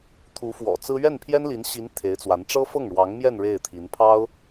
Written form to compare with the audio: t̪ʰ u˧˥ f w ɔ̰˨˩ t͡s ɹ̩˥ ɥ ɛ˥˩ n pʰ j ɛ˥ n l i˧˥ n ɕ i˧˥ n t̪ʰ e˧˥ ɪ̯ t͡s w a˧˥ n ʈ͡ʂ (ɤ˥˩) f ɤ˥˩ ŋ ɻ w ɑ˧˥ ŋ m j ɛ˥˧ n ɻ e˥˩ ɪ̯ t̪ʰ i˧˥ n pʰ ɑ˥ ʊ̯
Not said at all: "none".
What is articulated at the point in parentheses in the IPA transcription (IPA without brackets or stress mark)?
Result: ɤ˥